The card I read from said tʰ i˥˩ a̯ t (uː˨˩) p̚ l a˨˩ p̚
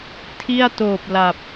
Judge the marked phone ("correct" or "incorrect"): incorrect